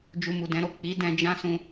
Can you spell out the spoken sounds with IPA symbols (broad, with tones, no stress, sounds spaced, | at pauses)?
d͡ʒ u˧ m u˨ d ɛ̃˨˦ ɾ o˦˨ k͡p i˨˦ d ɛ̃˧ d͡ʒ ã˦ s ũ˧